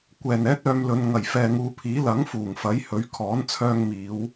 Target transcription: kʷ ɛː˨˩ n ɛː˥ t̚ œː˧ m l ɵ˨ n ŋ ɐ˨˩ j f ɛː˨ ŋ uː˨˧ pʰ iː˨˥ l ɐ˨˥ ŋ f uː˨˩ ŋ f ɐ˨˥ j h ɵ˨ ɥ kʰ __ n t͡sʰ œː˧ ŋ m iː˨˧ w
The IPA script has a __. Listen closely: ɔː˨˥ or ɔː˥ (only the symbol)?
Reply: ɔː˨˥